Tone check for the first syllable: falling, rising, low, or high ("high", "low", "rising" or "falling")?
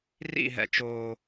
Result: falling